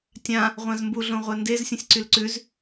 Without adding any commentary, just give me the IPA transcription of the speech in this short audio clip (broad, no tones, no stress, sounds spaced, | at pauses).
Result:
tʲ ã | ʁʷ ã z m b u ɮ õ ʁʷ ɛ n d e z sʲ ũ sʲ ǀ y l ǀ ʉ z